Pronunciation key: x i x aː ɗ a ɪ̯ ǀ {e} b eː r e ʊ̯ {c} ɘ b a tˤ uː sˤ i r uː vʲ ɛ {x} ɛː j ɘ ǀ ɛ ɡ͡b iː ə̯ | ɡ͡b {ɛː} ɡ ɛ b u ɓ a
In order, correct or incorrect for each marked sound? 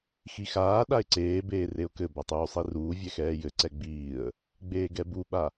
incorrect, incorrect, correct, incorrect

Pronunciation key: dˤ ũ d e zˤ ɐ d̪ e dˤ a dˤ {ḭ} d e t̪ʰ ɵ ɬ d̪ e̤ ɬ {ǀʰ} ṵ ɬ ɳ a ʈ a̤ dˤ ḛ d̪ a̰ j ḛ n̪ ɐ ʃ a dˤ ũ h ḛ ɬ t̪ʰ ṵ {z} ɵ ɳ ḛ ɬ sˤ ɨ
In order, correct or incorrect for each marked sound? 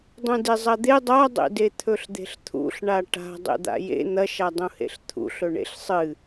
incorrect, incorrect, incorrect

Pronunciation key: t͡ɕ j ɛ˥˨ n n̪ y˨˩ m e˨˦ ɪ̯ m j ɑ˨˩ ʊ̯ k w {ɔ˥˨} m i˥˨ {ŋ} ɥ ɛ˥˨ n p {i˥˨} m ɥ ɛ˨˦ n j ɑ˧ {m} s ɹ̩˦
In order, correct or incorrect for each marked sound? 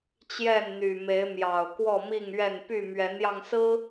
correct, correct, incorrect, incorrect

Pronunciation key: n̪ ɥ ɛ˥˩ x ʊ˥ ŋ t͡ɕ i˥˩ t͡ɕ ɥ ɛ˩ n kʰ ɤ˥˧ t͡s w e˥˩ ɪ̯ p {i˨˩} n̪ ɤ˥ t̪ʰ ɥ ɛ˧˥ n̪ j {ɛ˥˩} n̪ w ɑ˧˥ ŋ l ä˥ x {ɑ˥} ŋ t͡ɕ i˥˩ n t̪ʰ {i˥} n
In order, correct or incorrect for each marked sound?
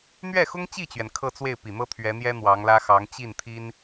correct, incorrect, incorrect, correct

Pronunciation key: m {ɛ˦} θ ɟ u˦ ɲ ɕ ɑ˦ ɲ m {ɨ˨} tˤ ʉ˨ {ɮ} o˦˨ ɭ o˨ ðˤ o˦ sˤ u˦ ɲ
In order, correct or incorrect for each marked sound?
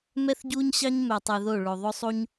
correct, incorrect, incorrect

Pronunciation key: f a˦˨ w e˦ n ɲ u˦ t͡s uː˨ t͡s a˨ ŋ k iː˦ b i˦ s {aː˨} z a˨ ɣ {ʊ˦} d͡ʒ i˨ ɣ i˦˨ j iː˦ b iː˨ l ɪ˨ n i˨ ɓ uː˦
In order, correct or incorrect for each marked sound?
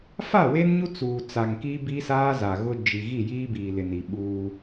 incorrect, correct

